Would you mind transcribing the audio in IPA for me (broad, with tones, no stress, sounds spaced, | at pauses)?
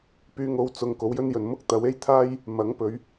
p yː˧ ŋ o˨˧ w t͡s ʊ˨ ŋ k o˨˥ w j ɵ˥ n j ɵ˨ n m ʊ˥ k̚ t̪ ɐ˨˥ w e˥ j t̪ʰ aː˥ j | m ɐ˨˥ ŋ p ɵ˨˧ ɥ